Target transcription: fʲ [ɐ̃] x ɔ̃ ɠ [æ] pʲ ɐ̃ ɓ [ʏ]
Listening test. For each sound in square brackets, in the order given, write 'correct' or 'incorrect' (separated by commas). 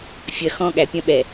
incorrect, correct, incorrect